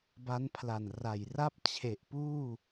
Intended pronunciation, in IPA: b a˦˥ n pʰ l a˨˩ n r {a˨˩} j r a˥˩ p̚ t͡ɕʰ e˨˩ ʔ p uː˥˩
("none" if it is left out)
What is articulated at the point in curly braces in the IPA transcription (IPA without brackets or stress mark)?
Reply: a˨˩